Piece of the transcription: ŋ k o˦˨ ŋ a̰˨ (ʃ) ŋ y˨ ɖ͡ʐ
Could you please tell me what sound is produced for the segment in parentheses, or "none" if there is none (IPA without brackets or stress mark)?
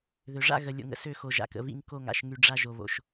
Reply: ʃ